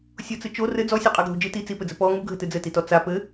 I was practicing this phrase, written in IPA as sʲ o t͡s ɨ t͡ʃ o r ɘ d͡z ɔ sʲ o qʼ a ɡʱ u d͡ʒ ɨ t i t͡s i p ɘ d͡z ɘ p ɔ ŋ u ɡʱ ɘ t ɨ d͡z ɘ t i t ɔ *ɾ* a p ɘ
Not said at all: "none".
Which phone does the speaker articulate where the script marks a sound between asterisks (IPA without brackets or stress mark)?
t͡s